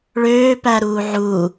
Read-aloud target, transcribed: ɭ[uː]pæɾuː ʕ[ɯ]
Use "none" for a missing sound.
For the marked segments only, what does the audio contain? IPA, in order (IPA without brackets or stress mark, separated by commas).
øː, u